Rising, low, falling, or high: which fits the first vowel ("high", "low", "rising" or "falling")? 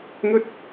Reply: high